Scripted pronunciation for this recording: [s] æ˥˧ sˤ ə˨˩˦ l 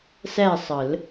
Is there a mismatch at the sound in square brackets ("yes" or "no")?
no